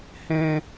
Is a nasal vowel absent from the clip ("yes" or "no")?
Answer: no